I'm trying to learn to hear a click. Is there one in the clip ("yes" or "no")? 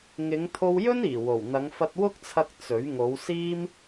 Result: no